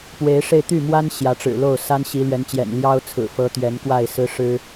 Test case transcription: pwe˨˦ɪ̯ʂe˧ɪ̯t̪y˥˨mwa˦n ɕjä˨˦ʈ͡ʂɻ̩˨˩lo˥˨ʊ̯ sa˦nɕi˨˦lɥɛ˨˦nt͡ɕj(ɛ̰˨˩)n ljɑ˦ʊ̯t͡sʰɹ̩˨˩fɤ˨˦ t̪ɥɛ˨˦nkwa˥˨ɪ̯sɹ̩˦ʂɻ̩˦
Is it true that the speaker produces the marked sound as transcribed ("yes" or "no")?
yes